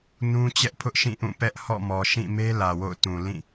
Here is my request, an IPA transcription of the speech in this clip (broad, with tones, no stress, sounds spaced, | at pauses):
n ũ˦ t͡ɕ ɛ˦ ʔ pʰ ʊ˦ ʔ ʃ ĩ˦˨ ʔ ũ˦˨ p ɛ˦ ʔ h ɔ̰˦˨ m ɔ˨ ʃ ĩ˦˨ m e˦ l ä˨ w o̰˦˨ ʊ̯ t ũ˨ l ĩ˦˨